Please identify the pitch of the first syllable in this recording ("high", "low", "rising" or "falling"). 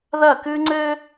falling